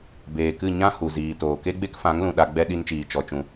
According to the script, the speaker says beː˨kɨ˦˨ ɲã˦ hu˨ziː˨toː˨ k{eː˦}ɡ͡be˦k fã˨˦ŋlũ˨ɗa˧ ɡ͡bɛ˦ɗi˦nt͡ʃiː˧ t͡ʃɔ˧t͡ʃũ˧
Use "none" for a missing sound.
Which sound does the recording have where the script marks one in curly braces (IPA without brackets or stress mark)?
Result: e˦